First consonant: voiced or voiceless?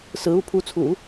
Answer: voiceless